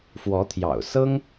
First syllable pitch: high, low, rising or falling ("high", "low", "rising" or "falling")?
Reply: rising